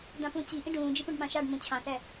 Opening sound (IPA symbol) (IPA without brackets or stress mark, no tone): d̪